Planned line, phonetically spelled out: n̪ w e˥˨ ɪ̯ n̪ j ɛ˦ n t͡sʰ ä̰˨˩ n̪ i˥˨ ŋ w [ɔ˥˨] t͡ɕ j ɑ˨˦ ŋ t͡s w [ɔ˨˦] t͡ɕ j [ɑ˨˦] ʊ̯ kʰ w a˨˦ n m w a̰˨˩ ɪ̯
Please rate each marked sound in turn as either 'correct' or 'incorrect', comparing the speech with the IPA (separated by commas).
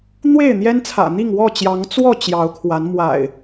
correct, incorrect, correct